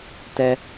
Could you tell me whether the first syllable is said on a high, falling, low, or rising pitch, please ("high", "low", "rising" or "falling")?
high